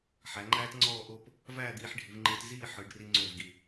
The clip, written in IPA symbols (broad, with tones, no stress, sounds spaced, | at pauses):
ħ æ˩˧ ŋ͡ǃ æː˥ t ŋ͡ǀ ɔː˥˧ ʔ o˥˧ p | v æː˥˧ d̪ iː˧ ħ ɖʱ i˩˧ v ŋ͡ǃ ɯː˧ t z iː˥˧ ħ ɯ˩˧ ɖ r i˧ ŋ͡ǀ o˧˩ v ɡ i˧˩